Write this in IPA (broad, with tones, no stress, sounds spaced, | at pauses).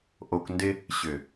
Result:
ʔ o˨ k n d ɪ˦ | ɕ ʏ˨